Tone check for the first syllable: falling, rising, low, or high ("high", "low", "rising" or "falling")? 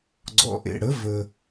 low